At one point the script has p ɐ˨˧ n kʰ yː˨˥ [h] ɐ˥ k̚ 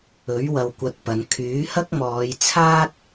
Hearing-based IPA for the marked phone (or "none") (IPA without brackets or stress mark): h